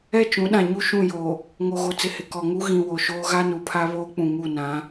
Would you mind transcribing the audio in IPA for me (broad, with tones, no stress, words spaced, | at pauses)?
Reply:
ɛ˦˨t͡ʃũ˨˦ɗã˨ ɲu˦ʃũ˦˨joː˨ | ŋo˨ɣo˨ t͡sɪ˨hɪ˨ kɔ˨ŋu˦ ɣĩ˨ wo˨ʃoː˦ ɣa˦nu˨pʰa˦βoː˦ k͡pũ˨ŋu˦˨nã˨˦